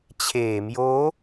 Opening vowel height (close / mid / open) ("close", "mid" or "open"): mid